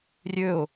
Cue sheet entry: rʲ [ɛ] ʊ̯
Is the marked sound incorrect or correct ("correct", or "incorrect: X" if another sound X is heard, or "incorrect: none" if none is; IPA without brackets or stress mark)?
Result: incorrect: ø